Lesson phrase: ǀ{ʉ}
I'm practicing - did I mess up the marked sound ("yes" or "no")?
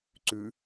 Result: no